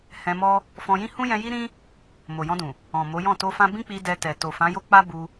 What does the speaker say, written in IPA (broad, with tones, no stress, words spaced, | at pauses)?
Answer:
hɛ̃˧mɔ˦ | fɔ̃˧jĩ˦hũ˦ jɛ̃˧ji˦ɾĩ˦ | mo˨jɔ̃˧dũ˨ | ɔ̃˨mo˨˦jɔ̃˦˨ to˧fã˧bĩ˦k͡pi˧ dɛ˧tɛ˨ to˨fã˨˦jo˦k͡pa˦ bu˧